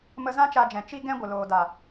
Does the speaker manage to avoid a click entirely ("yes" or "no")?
yes